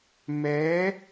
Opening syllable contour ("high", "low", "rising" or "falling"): rising